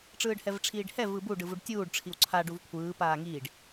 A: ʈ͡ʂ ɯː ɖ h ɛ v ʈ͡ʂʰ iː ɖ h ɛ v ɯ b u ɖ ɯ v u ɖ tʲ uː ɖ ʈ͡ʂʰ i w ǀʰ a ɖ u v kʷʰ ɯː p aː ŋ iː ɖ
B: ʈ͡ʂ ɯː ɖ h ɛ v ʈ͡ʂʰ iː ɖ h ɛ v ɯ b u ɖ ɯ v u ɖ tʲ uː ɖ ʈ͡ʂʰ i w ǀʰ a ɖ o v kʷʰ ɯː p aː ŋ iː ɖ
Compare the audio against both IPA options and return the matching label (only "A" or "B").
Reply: A